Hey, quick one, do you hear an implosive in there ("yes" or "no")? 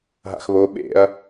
yes